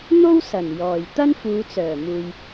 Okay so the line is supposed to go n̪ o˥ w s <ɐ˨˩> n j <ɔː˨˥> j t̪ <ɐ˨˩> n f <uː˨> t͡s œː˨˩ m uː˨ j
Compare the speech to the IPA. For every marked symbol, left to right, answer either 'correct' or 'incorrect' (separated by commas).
correct, incorrect, incorrect, incorrect